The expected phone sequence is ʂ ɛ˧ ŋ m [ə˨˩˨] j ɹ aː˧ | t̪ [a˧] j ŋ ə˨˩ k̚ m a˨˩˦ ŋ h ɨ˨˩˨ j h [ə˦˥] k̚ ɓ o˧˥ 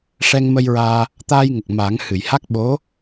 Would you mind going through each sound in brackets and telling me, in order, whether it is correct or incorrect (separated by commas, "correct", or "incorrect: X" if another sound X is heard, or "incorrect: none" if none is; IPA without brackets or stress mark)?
incorrect: ə˧, incorrect: aː˧, incorrect: a˦˥